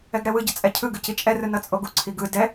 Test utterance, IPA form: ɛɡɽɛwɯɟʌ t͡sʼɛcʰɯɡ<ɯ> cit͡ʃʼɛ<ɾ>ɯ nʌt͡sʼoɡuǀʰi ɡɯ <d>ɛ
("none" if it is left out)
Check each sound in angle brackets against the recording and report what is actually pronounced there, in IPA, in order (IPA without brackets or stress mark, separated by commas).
ɯ, r, d